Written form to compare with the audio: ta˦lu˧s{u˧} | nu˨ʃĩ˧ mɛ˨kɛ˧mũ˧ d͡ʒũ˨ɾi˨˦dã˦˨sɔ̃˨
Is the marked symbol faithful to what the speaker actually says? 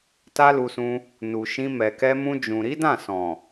no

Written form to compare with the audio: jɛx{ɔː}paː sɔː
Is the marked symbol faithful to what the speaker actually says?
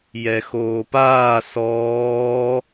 no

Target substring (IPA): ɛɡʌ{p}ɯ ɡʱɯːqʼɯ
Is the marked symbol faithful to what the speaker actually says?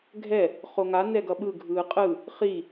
no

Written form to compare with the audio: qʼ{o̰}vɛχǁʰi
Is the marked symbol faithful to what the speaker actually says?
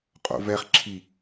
yes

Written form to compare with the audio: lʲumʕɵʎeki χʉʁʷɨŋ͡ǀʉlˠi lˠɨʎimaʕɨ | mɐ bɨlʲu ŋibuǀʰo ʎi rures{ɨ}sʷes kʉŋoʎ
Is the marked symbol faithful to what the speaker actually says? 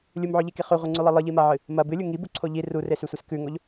no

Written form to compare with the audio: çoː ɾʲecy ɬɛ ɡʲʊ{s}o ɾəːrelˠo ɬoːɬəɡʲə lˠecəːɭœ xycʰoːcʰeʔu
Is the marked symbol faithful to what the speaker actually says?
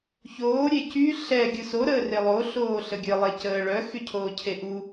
yes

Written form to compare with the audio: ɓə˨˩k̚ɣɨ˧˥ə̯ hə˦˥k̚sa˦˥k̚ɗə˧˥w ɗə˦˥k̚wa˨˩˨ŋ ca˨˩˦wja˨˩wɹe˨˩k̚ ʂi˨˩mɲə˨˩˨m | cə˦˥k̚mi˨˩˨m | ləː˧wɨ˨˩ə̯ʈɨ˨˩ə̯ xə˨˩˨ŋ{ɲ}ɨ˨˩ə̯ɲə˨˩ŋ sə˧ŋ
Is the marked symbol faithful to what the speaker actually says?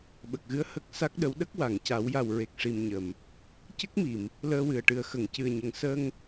no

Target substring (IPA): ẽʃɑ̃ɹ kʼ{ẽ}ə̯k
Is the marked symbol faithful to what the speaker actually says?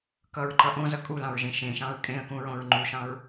yes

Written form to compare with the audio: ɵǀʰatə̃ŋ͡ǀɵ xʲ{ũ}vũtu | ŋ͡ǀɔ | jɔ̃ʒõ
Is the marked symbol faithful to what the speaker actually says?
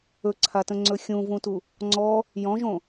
yes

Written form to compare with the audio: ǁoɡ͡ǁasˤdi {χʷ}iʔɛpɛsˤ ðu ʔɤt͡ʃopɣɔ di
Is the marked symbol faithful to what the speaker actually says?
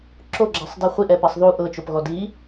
yes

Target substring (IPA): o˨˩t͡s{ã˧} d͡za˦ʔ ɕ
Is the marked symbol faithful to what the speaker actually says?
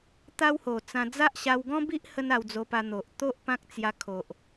yes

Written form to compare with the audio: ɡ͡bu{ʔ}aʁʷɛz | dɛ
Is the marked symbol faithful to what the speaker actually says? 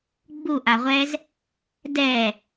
yes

